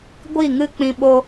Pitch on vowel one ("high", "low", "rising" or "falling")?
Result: falling